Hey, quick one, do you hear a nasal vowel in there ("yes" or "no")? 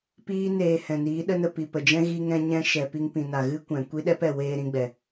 yes